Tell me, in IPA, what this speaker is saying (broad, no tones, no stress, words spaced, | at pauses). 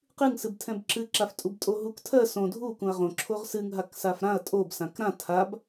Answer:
qɨŋsɨbtʰɛ̃b ǁɨǁaftʼub tʼoɦuk tʰɜ sõ dʱu kũɐ̯ʁõ ǁʰoʁsɨŋ ɦaksafɾãɐ̯ tʼob sãkɾã tʰab